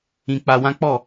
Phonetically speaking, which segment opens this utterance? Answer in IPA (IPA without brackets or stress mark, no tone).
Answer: ĩ